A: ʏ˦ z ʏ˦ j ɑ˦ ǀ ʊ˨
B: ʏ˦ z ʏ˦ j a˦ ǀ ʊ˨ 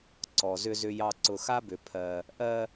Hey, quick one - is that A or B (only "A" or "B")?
A